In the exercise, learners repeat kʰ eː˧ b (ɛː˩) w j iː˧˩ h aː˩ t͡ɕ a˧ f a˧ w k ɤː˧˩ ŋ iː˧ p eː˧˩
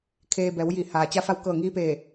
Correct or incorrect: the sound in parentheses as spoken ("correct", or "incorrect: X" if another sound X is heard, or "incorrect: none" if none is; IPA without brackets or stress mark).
incorrect: ɛː˩˧